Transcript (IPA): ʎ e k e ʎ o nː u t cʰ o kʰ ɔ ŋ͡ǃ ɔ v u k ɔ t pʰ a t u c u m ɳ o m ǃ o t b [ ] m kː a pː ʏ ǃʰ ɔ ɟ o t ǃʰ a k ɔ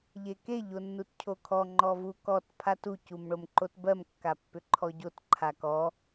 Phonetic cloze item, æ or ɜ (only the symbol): ɜ